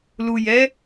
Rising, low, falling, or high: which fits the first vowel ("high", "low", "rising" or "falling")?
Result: low